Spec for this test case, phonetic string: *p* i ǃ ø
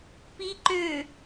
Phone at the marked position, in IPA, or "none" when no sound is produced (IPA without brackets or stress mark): p